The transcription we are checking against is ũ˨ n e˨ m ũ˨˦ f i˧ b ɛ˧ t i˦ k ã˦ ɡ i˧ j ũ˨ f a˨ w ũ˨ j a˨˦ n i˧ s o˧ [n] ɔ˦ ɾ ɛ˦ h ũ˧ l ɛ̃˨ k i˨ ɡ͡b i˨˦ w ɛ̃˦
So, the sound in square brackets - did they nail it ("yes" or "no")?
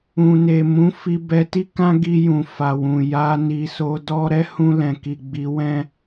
no